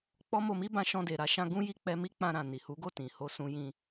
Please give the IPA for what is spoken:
k͡p ɔ˦ m o˧ m i˦ b ã˧ ʃ ɔ̃˧ d e˨ ɾ a˧ ʃ ã˧ ɡ ũ˦ j i˦ k͡p ɛ˧ m i˦ k͡p ã˧ ɾ ã˨ n i˨ h u˨˦ ɡ o˦˨ t ĩ˨ h o˧ s ũ˧ j ĩ˧

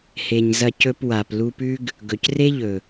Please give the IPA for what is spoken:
h e˨ ɲ z ɐ˧ c ɵ˧ p w a˨ p l u˧ p ʉ˦ ɡ | ɡ ɵ˨ c r e˦ ʎ ɵ˨

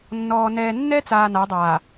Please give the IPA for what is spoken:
nː ɔː˨ n ɛː˨ nː ɛ˦ t͡s aː˨ n a˨˦ dˤ aː˨

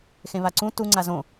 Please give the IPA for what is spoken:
x ẽ β a ǀ ũ t u ŋ͡ǀ a z õ

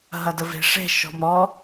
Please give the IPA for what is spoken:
ɦ ɐ d ə v e̤ ʂ e̤ ʃ ɔ̤ m ɾ ɔ

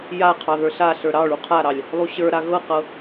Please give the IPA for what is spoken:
j a qʰ ɑ ð ə˞ ɬ a ɬ ə˞ ɾ ɑ ɭ u qʰ a ɾ ɑ lʲ | lˠ u ɕ ə˞ ɾ a ɣ ɤ q ɤ

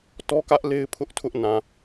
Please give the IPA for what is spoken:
t ɔ˦ k ä˦ ʔ l e˦ ɪ̯ pʰ ʊ˦ ʔ tʰ ʊ˦ ʔ n ã˨

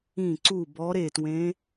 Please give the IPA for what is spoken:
ĩ˧˩ ǀ u˧˩ b ɔ˨˦ ɾ e˧˩ t w ẽ˨˦

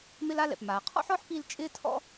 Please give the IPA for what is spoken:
m ɪ˥ l a˥ l ɛ̰˩ p m aː˩ qʰ ɔ̰˥ ħ ɔ˥ ħ p i˧ l t͡ʃʼ ɪː˥ tʰ ɔ̰˥

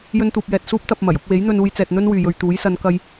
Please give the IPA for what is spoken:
j ɵ˥ n t̪ uː˧ p̚ j ɛː˧ t̚ s uː˥ p̚ t̪ ɐ˧ p̚ m ɐ˨˩ j ʊ˨˥ k̚ w e˨˥ j n̪ ɵ˧ n uː˧ j t͡s ɛː˨ t̚ n̪ ɵ˥ n w yː˨ j ɵ˧ ɥ t̪ uː˨˥ j s ɐ˨˧ n k ɐ˧ j

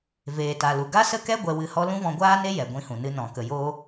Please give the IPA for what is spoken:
v eː˨ t a˨ l u˨ ɡ a˦ s ə˦ k ɛ˦ ɡʷ ɛ˧ w ɨ˧ h ɔ˦ l ũ˦ v ɔ̃˧ ɡʷ aː˦ n e˦ j ɛ˨ ɡʷ ĩ˧ h ũ˨ n ɨ˧ n ɔ̃˨ k ə˨ j oː˧

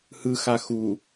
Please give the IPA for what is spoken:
h ɯ x a x u

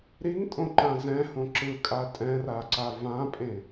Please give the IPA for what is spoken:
ɾ i ŋ tʼ õ ǃ ã z ɛ̃ h õ ǁ ɯ kʼ a tʼ ɛ̃ r a ǀ a v ã pʼ ẽ

